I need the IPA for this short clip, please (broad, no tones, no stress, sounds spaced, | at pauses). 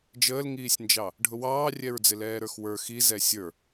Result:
d͡ʒ əː l ŋ iː sʲ n d͡ʒ ɑ | ɖʱ ʊ w ɑː rʲ ɛ ɹ d͡z ɪ l ɛː ɾ ə˞ x w ə˞ x i z ɛ sʲ ə˞